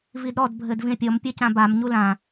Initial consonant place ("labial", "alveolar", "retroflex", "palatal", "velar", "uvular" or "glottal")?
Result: labial